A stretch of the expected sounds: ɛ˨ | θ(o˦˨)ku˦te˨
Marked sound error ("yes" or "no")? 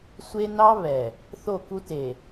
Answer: no